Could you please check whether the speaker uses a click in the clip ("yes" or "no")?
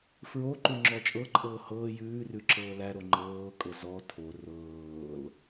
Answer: yes